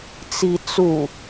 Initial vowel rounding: unrounded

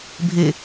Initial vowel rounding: unrounded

